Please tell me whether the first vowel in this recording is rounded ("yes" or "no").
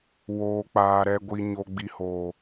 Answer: yes